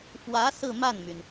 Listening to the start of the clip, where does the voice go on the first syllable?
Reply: rising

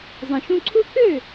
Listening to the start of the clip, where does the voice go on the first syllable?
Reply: low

